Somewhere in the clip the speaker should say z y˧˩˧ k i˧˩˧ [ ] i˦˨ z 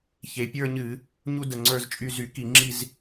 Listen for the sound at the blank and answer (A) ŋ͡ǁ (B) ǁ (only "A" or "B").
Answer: A